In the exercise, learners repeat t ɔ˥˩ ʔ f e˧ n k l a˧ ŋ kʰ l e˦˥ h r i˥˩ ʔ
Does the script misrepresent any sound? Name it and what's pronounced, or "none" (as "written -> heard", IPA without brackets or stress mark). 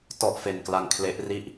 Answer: h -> ʔ